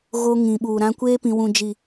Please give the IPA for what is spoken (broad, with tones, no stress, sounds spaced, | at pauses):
ɣ o˦ ŋ ĩ˨ ɓ uː˨ ɾ ã˦ kʷ eː˦ p ĩ˨ w ũ˨ d͡ʒ i˨